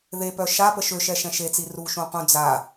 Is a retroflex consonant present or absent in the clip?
absent